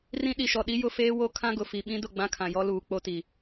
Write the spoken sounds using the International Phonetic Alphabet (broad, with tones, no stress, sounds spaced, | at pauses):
r ĩ˦ ɗ i˨ ʃ ɔ˨ ɗ i˦ j ʊ˦ f eː˦ w o˦ kʰ ã˦ ɡ ʊ˨ f i˨ ɓ ĩ˦ d ʊ˦˨ ɡ͡b ã˦ kʰ ã˨ j ɔ˦ l uː˨ k͡p o˦ t i˨